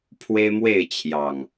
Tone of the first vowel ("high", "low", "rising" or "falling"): high